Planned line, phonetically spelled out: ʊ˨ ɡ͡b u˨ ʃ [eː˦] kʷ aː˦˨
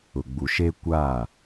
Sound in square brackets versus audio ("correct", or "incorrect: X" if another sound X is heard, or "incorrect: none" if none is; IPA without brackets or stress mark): correct